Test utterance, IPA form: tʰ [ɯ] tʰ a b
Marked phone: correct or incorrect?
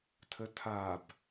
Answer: incorrect